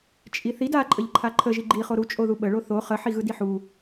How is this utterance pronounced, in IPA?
t͡ʃʼ i θ i d a ǃʼ ə ʎ ǃʰ a ǃʰ ə ʒ i ɡ͡ǃ i χ o ɾ u t͡ʃʼ o ð u ɓ ə ɭ o θ o χ ə ħ i ɣ ɯ d i ħ u

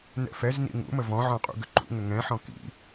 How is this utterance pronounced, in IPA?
n ɛ̰ f ɛ z n ḭ ŋ ṵ m ə v ɔ̃ ʕ ɔ̃ qʼ ṵ ɡ ʏ ǃ ṵ ŋ ʏ ŋ ɛ̃ ħ ɔ̃ k ḭ

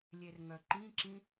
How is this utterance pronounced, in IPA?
lʲ e r ŋ œ ǃ ĩ ǁ ĩ

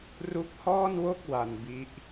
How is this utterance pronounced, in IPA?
r u˦˥ k̚ h ɔː˥˩ n w o˥˩ k̚ w a˧ n b i˦˥ ʔ

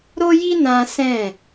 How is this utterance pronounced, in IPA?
ɾ o˦ j i˦ n ã˦ s ɛ̃˦˨

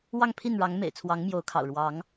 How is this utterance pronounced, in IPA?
w ɑ˥˨ ŋ pʰ i˥˨ n ɻ ɑ˨˦ ŋ m ḛ˨˩ ɪ̯ t͡sʰ w ɑ˨˦ ŋ m j o˨˦ ʊ̯ kʰ ɑ̰˨˩ ʊ̯ ɻ w ɑ˨˦ ŋ

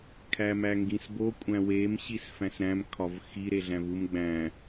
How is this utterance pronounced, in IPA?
kʰ æ m æ ŋ ɡ ĩ s b o kʷʼ æ̃ w e m ɕ i s f æ̃ s ɾ æ̃ m kʰ ɒ v x i ɾ e ɮ æ̃ v u m ɡ͡b æ̃

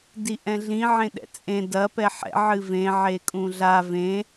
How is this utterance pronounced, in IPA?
d i ʔ ɛ̃ ɮ ĩ ʕ ẽ ɗ ɛ̰ t͡sʼ ẽ d ɐ p ɛ ħ ɛ̰ ʕ ɨ v ẽ ʕ e kʼ ũ ɮ a v ẽ

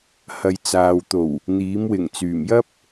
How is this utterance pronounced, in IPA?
h ɐ˨ j t͡s aː˨ w t̪ o˨˩ w | n̪ iː˨˥ m w ɪ˨˩ ŋ t͡s yː˨˩ m j ɐ˥ p̚

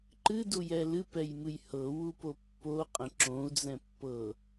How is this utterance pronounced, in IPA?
ǃ ɨ d u j ɛ l ɨ p ɛ j m ɨ j h ɤ w u p o pː o qʼ ə̃ ǁ õ u̯ d͡z ɛ̃ pː ɤ

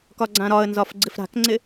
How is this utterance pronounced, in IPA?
k ɒ ɡ͡ǀ ã ɾ ɒ ə̯ n z ɒ f ɡ͡ǀ ɪ f ɾ a̤ k ŋ͡ǀ ɪ

